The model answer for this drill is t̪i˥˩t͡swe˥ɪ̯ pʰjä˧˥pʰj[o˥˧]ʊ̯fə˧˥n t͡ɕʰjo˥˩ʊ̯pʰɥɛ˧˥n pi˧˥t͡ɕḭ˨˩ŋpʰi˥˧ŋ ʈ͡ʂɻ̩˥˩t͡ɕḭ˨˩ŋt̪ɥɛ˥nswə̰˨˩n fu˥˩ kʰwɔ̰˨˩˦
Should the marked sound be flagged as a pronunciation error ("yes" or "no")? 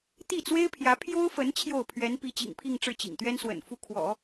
yes